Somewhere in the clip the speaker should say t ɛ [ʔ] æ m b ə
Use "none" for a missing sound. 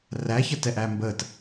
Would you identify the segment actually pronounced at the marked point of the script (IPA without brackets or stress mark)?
ʔ